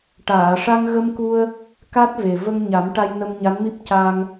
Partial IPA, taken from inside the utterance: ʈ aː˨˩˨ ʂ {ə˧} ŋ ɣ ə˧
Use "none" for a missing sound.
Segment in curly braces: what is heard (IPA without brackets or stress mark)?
a˧